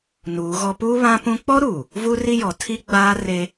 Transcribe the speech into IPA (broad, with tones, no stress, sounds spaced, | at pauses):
n uː˨˦ ɣ ɔ˦ p uː˦ β ã˦ p ũ˦ k͡p ɔ˦ ɾ uː˨ | v uː˦ r i˦ j ɔ˨ tʰ i˦ ɡ͡b aː˦ r e˦